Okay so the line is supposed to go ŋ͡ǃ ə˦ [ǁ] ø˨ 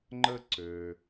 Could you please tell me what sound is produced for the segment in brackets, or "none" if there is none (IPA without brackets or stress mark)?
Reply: ǀ